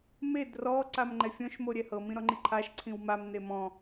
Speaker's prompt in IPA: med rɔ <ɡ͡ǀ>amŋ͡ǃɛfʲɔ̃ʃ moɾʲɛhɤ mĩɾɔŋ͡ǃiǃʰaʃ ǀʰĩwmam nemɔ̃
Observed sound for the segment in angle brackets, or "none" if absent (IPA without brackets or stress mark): ǀ